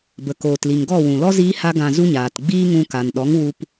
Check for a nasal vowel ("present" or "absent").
present